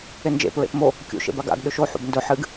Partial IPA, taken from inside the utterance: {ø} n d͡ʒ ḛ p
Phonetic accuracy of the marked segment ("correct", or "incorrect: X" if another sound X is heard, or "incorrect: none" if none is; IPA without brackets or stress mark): incorrect: e